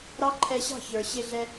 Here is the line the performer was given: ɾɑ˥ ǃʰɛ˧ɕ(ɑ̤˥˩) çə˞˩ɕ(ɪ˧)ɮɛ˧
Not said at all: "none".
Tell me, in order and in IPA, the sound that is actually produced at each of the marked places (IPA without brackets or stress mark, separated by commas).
ɑ̤˥˩, ɪ˧